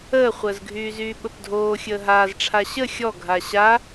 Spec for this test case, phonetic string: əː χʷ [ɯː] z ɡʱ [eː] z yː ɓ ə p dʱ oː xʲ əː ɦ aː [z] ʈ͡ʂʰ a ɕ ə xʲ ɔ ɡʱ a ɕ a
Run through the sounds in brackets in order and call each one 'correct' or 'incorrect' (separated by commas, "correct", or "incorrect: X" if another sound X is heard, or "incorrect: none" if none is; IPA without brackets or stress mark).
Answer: incorrect: əː, incorrect: yː, correct